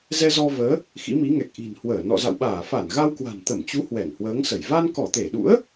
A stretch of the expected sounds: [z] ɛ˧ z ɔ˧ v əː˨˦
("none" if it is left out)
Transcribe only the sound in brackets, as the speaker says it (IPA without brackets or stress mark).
z